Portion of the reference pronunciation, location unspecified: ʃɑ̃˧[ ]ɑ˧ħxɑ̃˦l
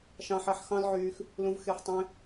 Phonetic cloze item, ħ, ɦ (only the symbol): ħ